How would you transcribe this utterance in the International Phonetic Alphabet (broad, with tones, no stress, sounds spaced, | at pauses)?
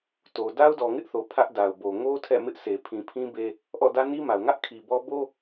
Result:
t o˨ d a˦ ʊ̯ d ɔ˨ ŋ ɪ˦ ʔ θ o˨ pʰ ä˦ ʔ d a˨ ʊ̯ b o˨ ŋ o˦ tʰ ɛ̰˦˨ m ɪ˦ ʔ sʰ e˨ pʰ ĩ˨ pʰ ĩ˦ b e˦ | ʔ ɔ̰˦˨ d ä˦ n i˦ m a˨ ʊ̯ ŋ ä˦ ʔ kʰ i˨ b ɔ˦ b o˦